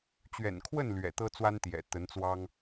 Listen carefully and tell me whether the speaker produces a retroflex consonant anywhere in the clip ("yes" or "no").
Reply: no